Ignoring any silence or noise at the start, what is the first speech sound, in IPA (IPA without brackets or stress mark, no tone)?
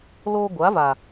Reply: l